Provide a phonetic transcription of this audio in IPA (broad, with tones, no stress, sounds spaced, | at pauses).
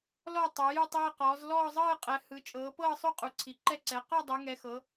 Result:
l ɔ˥˧ tˤ u˨˦ j u˥˧ tˤ eː˥˧ q ɔː˨˦ z l ɔː˥˧ zˤ ɤː˥˧ qʼ ɛ˨˦ h ɯ˨˦ t͡ʃʼ ɤː˨˦ p ɤː˥˧ sˤ o˥˧ qʼ u˨˦ ǀʰ i˨˦ ǃ ɛ˥˧ ǀ ɛ˨˦ q ɔ˥˧ dˤ e˨˦ ŋ ɛ˨˦ x ɤ˨˦